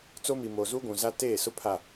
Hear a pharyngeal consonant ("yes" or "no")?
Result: no